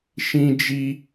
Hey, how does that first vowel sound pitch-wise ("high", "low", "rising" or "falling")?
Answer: high